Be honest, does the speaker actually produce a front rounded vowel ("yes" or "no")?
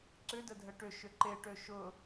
yes